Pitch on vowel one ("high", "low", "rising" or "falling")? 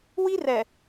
high